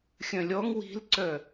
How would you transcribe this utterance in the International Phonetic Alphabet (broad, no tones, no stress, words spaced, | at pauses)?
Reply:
xʲœ̃lʲɔŋ wi̤lǀœ